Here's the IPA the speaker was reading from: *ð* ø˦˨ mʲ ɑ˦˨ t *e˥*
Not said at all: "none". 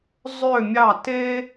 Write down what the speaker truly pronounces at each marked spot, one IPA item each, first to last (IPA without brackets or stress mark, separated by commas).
zˤ, e˥